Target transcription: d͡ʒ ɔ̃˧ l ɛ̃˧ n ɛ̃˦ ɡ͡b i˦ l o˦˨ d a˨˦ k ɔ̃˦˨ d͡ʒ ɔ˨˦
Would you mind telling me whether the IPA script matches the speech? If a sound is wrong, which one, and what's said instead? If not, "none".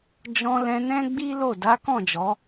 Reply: none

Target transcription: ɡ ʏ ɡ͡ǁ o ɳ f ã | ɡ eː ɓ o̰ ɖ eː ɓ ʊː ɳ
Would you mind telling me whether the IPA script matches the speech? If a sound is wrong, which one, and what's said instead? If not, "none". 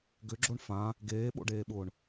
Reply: none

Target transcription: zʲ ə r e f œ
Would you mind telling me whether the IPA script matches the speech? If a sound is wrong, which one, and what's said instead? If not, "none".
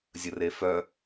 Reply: none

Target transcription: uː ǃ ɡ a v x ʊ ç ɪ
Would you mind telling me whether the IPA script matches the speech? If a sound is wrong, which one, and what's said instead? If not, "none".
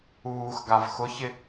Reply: ǃ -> x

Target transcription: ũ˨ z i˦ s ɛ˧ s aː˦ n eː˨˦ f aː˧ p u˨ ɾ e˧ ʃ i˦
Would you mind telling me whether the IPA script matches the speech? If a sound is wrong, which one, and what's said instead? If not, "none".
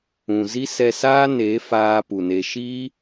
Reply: ɾ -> n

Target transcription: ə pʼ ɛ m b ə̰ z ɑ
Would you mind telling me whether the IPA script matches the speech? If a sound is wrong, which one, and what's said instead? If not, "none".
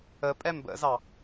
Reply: none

